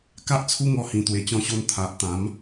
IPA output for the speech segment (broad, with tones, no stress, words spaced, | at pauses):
ka˦ʔt͡sʰu˦ŋɔ˧ hĩ˨˩ t̪we˨˩t͡ɕɔ̃˧ɕo˧n t̪ʰa˨ʔ t̪ã˨˦m